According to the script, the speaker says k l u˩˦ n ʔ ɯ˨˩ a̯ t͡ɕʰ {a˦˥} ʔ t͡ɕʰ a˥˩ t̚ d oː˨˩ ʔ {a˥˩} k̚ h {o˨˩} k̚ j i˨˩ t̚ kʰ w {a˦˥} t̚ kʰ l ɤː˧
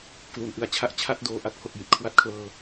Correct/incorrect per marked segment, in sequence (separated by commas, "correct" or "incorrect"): incorrect, correct, correct, incorrect